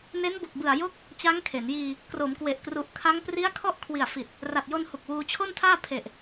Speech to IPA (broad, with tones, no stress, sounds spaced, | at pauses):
n e˦˥ n b o˨˩ k̚ b ɯ˨˩ a̯ j o˦˥ k̚ | t͡ɕ a˦˥ ŋ kʰ e˩˦ n j iː˧ | k r o˩˦ m k w e˨˩ ʔ k r u˨˩ ʔ kʰ a˦˥ ŋ p r i˦˥ a̯ kʰ ɔ˦˥ ʔ kʰ w i˨˩ a̯ f i˨˩ t̚ | r a˨˩ t̚ j o˧ n h u˨˩ k̚ w uː˧ t͡ɕʰ o˥˩ n tʰ aː˥˩ pʰ e˨˩ ʔ